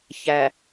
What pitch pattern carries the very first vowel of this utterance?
low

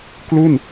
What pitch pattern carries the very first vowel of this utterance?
falling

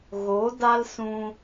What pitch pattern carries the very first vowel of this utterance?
rising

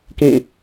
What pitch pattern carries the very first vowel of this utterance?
falling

